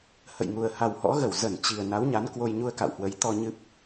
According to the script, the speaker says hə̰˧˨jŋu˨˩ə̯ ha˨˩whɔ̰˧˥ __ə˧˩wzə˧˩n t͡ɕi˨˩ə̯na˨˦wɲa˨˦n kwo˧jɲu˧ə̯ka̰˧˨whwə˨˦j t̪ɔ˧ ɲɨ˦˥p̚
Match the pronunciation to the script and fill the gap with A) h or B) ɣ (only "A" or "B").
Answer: B